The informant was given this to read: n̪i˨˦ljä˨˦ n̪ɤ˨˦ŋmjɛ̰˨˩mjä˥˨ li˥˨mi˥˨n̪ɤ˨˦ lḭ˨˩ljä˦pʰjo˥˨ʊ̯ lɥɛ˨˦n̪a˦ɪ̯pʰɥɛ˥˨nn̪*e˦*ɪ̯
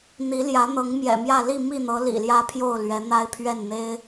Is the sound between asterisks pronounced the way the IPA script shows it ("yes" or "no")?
yes